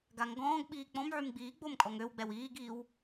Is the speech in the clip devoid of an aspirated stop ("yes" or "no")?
yes